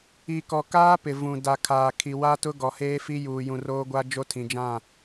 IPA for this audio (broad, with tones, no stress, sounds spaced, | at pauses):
i˨ k ɔ˨ k aː˦ p ɪ˨ v ũ˨ d a˨ kʰ aː˨ kʰ i˨ w a˦ t ʊ˦ ɡ ɔ˨ h eː˦ f i˦ j uː˨ j ũ˨ r oː˦ ɡʷ a˦ d͡ʒ o˦ tʰ ĩ˨ d͡ʒ ã˦˨